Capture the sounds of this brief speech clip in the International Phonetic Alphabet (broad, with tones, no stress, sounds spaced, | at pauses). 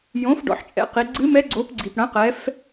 j õ˩˥ f ɖ ɔ̰˩˧ ħ t͡ʃʼ ɛ̰˩˥ q i˩˧ ɡ͡ǀ ɨ˧˥ m ɛ˧˥ ɡ͡ǀ o˩˥ p ɡ͡ǀ i˩ p ɽ ɐ̃˩˥ q ɛ˩˧ f